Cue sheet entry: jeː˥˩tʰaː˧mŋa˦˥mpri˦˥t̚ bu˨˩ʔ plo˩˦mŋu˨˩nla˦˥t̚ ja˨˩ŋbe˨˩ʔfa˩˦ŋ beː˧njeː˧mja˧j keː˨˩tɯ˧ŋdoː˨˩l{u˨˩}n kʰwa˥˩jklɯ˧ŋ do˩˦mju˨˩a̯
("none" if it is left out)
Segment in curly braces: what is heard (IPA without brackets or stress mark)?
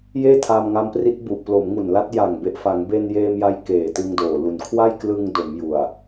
u˨˩